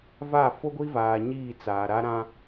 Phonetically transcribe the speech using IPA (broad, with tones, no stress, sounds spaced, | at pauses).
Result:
v a˦˨ f o˦ ɡʷ i˦ v aː˨ ɲ iː˦˨ t͡s aː˨ ɾ a˦ ɾ ã˦